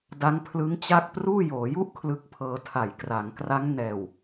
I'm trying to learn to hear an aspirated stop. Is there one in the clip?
yes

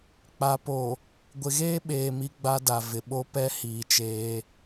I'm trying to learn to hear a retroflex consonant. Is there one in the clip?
no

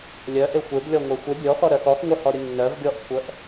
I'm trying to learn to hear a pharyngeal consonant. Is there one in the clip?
no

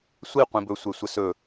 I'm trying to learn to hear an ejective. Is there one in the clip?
no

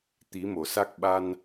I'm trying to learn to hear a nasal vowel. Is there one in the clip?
no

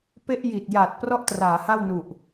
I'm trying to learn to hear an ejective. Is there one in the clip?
no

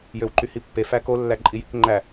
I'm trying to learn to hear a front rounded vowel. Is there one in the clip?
yes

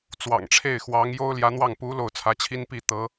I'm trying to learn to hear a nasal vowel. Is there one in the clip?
no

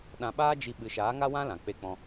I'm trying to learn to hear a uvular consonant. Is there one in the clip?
no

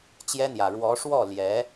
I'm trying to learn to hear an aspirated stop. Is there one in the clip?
no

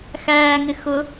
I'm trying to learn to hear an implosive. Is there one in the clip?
no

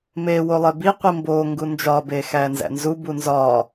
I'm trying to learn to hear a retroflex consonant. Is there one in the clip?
no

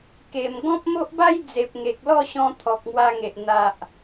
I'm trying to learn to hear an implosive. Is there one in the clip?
no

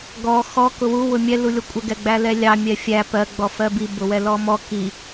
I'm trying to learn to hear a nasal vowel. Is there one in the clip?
no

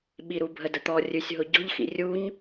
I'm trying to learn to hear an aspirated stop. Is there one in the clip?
no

